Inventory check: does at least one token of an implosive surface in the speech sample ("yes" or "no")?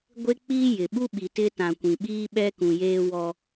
yes